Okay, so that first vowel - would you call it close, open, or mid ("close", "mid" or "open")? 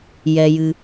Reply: mid